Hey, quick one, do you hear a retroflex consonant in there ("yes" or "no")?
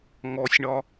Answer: yes